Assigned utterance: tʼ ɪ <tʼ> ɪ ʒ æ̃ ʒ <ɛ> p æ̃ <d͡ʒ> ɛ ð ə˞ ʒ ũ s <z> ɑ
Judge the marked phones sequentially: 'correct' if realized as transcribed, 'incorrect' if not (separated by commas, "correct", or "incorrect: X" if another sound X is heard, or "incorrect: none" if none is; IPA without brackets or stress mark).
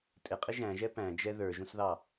incorrect: qʼ, correct, correct, incorrect: ð